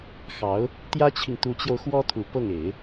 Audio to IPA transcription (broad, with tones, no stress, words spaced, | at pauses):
xɑ˧˥ʊ̯ | t̪jä˥t͡ɕʰi˨ŋt̪u˧˥t͡ɕjo˧ʊ̯ xwɔ˥t̪ʰu˨˩ pɤ˥˩ŋ e˨˩˦ɪ̯